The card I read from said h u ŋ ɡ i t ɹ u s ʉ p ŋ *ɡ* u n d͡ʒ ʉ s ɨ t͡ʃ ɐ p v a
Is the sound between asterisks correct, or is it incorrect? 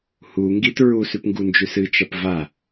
correct